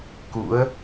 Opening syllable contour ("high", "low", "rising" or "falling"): rising